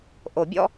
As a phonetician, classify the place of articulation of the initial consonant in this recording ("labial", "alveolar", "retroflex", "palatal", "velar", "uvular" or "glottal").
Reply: glottal